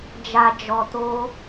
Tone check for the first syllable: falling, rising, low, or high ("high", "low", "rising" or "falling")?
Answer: low